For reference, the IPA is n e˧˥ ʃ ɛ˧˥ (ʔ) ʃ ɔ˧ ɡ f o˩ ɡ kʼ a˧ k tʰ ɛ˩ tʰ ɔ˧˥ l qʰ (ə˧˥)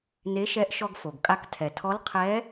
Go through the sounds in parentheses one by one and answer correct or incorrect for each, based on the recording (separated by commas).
correct, incorrect